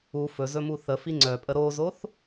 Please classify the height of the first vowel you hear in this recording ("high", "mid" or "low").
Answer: high